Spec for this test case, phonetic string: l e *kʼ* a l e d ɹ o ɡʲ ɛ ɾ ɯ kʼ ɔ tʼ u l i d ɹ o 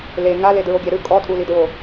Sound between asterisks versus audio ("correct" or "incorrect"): incorrect